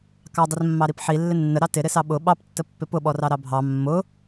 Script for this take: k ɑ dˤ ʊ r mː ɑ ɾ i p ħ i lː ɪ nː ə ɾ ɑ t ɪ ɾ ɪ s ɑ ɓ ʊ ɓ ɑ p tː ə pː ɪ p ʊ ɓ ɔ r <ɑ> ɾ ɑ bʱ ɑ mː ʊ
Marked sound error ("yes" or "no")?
no